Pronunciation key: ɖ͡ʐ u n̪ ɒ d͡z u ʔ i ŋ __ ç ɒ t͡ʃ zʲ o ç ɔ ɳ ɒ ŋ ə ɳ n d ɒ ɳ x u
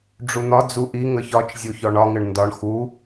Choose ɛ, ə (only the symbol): ə